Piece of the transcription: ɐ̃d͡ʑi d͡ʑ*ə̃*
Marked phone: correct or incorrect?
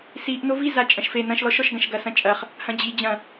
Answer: incorrect